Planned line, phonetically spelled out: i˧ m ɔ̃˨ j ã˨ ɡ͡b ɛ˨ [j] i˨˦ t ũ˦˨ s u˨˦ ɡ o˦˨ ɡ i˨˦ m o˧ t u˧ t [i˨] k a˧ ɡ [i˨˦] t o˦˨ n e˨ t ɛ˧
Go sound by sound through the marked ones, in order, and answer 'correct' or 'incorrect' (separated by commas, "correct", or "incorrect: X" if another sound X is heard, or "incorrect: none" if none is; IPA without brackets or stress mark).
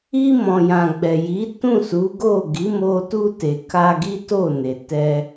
correct, incorrect: e˨, incorrect: i˦